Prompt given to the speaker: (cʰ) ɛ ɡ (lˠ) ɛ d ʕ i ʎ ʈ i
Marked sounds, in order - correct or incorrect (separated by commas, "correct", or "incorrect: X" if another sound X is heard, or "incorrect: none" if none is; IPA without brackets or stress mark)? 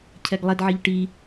correct, correct